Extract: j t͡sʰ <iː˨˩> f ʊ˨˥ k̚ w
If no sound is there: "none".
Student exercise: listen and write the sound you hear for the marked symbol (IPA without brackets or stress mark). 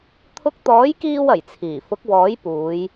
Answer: iː˨˩